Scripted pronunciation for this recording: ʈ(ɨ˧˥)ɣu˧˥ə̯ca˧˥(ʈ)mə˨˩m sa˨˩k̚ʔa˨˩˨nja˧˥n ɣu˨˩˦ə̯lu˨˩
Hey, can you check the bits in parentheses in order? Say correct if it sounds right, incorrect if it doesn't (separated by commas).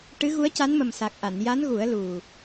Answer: correct, incorrect